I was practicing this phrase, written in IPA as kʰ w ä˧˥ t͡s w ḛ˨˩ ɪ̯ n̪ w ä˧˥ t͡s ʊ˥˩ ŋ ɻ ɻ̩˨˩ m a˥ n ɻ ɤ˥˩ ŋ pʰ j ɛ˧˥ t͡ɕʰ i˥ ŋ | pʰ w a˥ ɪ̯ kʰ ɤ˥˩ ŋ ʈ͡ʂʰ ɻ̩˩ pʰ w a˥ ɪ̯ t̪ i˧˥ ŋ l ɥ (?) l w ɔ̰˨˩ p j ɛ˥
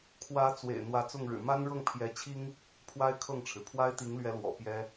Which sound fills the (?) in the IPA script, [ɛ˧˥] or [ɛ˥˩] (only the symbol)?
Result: ɛ˧˥